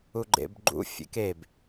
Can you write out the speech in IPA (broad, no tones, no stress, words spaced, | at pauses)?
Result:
uɡ͡ǃḛbɡ͡ǃṵ fʲḛkeb